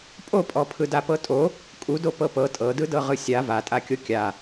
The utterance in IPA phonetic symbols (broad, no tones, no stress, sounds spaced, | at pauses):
pʼ o pʼ ɔ pʰ ɯ d a p ɤ tʼ o | kʼ u d o p ɤ p ɤ tʼ ɤ d ɯ d ɤ ʁ ɯ sʲ a v a tʼ a kʲ o kʲ a